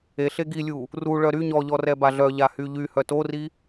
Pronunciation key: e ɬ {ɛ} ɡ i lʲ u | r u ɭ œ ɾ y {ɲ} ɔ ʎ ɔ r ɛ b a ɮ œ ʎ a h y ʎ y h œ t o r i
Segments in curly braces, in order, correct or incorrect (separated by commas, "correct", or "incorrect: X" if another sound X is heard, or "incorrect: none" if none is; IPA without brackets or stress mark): incorrect: e, correct